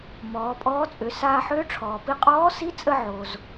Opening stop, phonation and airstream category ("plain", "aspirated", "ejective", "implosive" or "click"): ejective